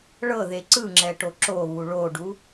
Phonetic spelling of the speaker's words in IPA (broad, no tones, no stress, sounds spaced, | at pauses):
ɭ ɤ ð e ǀ ɯ ŋ͡ǁ ɛ ʈ o ǁ o β u ɭ o ɖ u